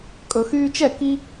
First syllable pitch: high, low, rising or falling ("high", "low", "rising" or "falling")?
low